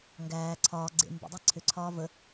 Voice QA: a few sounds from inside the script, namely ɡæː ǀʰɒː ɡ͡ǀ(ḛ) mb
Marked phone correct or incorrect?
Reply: correct